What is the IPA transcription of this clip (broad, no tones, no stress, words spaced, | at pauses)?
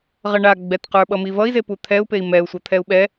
ʁʌɳa ɡ͡bɛtqə˞ɓʌ mivʌi̯ze put̪ʰɛu̯pei̯ mɛu̯sʷʌ t̪ʰɛu̯ɓɛ